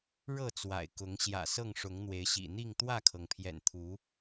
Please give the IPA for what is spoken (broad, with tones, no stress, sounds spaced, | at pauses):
ɻ ɤ˥˨ t͡s w a̰˨˩ ɪ̯ k ʊ˨˦ ŋ ɕ j ä̰˨˩ s ɤ˥˨ ŋ ʂ ʊ˨˦ ŋ n̪ w e˨˦ ɪ̯ ɕ ḭ˨˩ n̪ i˥˨ ŋ t̪ w ä˥˨ kʰ ɤ˩ ŋ pʰ j ɛ̰˨˩ n t̪ʰ u˨˦